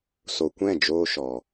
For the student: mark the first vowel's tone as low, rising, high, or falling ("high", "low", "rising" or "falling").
low